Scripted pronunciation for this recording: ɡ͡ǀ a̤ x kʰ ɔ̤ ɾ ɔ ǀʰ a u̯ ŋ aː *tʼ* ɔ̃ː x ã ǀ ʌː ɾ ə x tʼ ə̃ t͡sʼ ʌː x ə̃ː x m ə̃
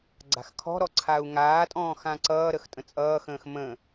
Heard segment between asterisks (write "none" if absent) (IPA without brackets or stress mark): tʼ